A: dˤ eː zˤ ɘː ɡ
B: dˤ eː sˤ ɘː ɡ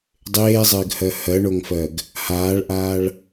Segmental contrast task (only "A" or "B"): A